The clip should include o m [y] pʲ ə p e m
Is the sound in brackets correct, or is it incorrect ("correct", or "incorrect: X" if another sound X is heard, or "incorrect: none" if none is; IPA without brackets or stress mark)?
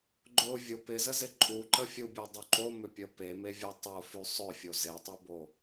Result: incorrect: ʏ